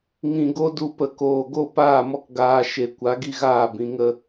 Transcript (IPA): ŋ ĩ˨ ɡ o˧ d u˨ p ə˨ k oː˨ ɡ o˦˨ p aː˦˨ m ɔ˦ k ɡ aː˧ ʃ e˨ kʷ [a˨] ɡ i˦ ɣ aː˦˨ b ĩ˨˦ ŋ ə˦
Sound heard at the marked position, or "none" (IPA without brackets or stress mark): a˨˦